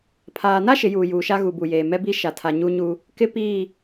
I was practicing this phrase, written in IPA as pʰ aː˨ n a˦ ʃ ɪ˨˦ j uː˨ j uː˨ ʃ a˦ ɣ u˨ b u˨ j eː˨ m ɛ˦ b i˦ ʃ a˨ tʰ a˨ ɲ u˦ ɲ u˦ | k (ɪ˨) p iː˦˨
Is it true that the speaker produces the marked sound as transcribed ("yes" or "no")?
no